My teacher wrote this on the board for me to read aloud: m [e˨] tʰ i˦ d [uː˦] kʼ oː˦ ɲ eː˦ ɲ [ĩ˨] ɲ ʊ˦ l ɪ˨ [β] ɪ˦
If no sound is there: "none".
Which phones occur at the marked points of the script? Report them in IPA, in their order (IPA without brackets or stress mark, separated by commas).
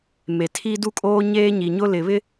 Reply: e˨, u˦, i˨, β